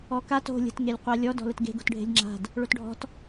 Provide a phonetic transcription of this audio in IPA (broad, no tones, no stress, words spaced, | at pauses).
ɔkat o̤ lʲə̤t ŋelʲqʷalʲɔ dɔ̤lətɡe̤ ɡo̤tɖʱe̤lʲŋ͡ǁa̤d | ɭotɖʱɔ̤t